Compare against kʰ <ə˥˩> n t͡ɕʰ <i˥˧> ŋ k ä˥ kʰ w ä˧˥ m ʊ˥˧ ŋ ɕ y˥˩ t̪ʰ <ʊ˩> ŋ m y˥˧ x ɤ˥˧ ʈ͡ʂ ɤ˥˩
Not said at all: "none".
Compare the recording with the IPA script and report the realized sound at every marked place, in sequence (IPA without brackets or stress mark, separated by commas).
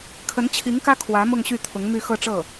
ə˧˥, i˧˥, ʊ˧˥